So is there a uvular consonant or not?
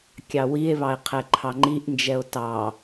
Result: yes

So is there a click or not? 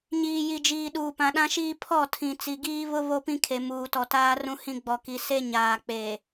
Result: no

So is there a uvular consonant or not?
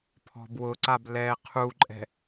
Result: yes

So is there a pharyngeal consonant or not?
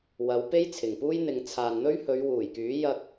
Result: no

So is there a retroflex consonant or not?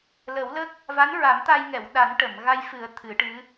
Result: yes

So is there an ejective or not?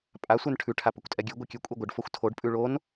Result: yes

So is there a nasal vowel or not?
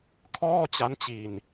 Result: no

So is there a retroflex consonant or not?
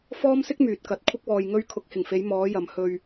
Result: no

